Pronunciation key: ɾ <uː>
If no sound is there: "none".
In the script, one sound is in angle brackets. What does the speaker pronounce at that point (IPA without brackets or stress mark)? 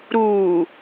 uː